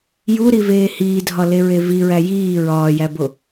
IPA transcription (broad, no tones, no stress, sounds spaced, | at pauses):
j u ɾ i v eː h iː dʱ ɒ l e ɹ e v i ɹ æ j iː ɹ ɒː j æ b o